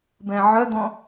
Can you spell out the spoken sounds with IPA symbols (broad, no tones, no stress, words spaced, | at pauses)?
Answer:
bɛ̃ʕœd̪ɔ̃